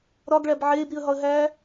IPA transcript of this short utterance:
ɾ ɒ ɡ ɭ æ b ʕ eː b ɾ i ə̯ ɦ ɒ ə̯ ɦ æː

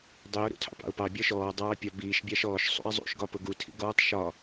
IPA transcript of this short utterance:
dˤ i ʊ̯ ɾ ṵ tʰ ɑ̰ p ɑ̰ ʊ̯ p ɑ bʲ ɒ ʃ ɔː dˤ ɑː pʲ ɒ b iː ʃ bʲ ɑ ʃ ɔː ʃ sˤ ṵ ɪ̯ zˤ ṵ ʃ ɡ ɒ p ʊ ɡ u tʰ ḭ ɡ ɔː tˤ ʃ ɒ

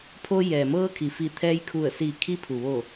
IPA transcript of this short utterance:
pʰ o˧ j ɛː˩ m ɤː˧ kʰ i˩ f i˧˩ t̪ʰ ɛː˧ j kʰ u˧˩ ə̯ s i˧˩ kʰ i˧ pʰ u˩ ʋ o˧˩

